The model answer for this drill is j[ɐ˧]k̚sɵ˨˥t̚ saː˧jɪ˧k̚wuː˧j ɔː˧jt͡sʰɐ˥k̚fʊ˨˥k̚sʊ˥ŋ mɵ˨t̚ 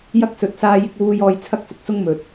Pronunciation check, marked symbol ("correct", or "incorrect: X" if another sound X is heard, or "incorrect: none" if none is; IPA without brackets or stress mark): incorrect: ɐ˥